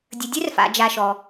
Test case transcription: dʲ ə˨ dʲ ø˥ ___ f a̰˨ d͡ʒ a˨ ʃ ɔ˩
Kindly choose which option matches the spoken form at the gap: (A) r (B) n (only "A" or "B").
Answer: A